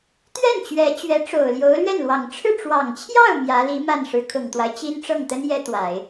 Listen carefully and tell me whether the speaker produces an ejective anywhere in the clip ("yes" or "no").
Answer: no